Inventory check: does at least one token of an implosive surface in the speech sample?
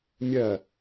no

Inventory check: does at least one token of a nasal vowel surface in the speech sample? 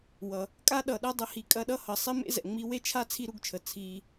no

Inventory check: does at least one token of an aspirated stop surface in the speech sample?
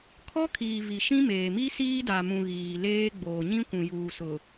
yes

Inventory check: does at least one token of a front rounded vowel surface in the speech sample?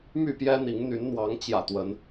yes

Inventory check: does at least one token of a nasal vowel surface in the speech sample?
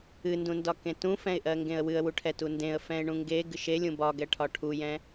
yes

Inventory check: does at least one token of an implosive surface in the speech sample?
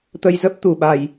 yes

